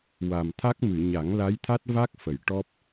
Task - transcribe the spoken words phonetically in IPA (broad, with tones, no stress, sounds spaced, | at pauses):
w a˨˩ m t̪ʰ a˦˥ k̚ m ɨ˨˩˨ ɲ a˨˩˦ ŋ l a˧˥ j t̪ʰ a˦˥ t̚ v a˦˥ k̚ f ə˨˩˨ j ʈ ɔ˦˥ p̚